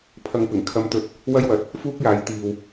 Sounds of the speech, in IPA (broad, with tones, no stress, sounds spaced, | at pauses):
pʰ ɐ˧ ŋ p ɪ˨˩ ŋ kʰ ɐ˧ m t̪ ɵ˧ t̚ | w ɐ˥ j w ɐ˨ t̚ | f uː˥ k̚ j aː˨˥ j t̪ iː˨ w